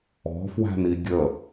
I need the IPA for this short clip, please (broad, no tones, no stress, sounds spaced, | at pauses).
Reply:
ɔ̤ f w æ̤ n i ɡʲ ə